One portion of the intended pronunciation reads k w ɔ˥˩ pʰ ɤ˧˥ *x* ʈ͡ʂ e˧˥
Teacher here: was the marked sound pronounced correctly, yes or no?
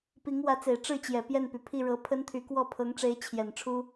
no